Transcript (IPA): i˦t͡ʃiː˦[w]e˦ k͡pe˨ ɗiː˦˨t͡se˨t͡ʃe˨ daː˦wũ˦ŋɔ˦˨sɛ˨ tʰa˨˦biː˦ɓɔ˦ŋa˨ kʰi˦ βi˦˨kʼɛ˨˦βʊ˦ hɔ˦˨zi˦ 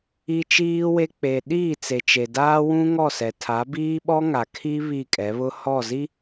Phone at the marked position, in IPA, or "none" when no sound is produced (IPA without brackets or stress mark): w